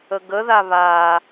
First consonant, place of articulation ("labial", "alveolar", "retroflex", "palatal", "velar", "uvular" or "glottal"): velar